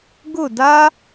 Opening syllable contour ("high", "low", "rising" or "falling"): falling